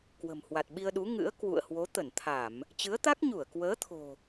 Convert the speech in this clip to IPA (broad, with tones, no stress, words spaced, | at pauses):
kwə̤˨˩mhwa˨˩t̚ɓi˧ə̯ɗu˨˦ ŋɨ̰˧˥ə̯ kwṵ˧˨ə̯hwo˨˦ t̪ə˧˩nt̪ʰa˧˩˨m | t͡ɕɨ˨˦ə̯t̪a˦˥k̚ɲu˧˩ə̯ kwəː˨˦t̪ʰo̤˨˩